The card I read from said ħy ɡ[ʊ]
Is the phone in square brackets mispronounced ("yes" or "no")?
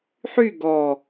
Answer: yes